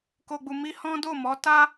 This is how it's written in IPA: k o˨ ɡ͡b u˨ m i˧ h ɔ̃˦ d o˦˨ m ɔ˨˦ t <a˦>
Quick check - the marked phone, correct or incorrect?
correct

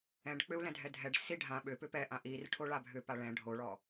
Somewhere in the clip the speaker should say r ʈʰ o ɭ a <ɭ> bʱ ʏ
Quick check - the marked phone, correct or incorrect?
incorrect: none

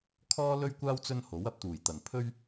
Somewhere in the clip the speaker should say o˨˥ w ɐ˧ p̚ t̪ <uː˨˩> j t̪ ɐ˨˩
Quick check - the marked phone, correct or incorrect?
correct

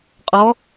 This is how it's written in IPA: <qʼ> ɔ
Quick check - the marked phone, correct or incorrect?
correct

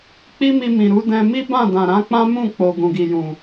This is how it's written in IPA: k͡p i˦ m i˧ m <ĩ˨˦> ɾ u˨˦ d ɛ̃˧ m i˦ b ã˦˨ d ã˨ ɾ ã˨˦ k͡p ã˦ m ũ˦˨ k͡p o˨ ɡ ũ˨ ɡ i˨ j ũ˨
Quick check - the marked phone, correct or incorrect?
incorrect: ĩ˨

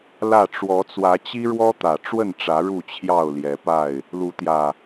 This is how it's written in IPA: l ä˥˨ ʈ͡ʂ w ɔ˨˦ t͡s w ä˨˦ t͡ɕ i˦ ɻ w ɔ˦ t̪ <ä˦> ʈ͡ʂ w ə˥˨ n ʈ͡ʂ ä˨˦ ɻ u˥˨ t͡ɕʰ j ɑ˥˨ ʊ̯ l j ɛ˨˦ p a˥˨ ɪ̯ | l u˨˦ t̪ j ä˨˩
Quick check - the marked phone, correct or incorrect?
incorrect: ä˨˩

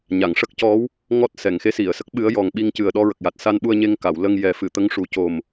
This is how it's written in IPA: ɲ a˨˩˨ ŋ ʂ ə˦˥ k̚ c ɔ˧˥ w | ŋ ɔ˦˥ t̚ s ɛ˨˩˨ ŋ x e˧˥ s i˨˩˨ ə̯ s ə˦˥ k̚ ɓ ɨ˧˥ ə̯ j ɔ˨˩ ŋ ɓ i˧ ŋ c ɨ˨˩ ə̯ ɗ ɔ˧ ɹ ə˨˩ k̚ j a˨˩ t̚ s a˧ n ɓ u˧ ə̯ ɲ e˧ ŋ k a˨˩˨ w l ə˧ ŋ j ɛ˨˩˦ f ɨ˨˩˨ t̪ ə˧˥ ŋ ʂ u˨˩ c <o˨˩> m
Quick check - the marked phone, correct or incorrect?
correct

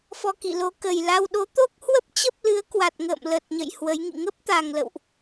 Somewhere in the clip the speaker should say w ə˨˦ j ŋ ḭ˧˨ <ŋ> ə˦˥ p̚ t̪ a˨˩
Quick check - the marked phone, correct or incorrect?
correct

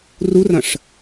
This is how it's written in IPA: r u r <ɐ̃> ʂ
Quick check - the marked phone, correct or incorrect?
correct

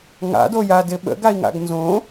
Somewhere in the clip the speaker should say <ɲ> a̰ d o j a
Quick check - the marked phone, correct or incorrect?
incorrect: ŋ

